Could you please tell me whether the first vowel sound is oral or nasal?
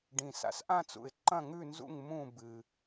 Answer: nasal